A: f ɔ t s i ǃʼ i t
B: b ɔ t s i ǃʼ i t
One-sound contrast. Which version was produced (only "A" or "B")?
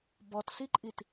B